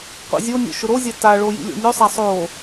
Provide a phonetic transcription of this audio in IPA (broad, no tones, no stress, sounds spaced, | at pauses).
qʷ ḭ zʲ o nʲ o̰ ʃ ʊ ɾ o zʲ a t a ɭ o j ḭ lʲ o̰ nʲ o sˤ a sˤ o